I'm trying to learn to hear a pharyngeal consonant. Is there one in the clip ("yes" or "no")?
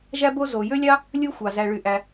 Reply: no